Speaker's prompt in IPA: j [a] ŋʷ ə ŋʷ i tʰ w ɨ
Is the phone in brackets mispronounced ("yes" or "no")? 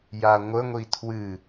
no